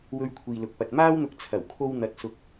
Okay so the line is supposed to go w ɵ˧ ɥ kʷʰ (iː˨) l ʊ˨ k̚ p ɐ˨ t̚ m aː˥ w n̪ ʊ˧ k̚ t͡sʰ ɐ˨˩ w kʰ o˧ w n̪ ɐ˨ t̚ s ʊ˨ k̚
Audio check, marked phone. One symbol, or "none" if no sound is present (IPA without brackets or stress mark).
iː˨